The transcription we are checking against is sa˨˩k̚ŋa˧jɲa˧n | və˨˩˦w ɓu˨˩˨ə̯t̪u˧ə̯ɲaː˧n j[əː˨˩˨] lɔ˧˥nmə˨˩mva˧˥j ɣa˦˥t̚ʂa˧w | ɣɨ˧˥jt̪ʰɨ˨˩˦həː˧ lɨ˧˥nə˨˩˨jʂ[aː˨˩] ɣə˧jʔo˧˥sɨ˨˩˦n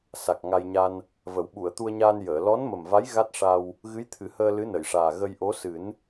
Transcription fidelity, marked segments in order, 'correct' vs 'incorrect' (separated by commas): correct, correct